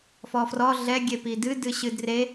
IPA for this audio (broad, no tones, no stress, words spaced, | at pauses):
fɔfrɔ ɮɛ ɡʲepidɨ dɨɕɨdre